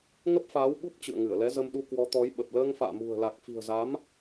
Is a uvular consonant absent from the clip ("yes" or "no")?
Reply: yes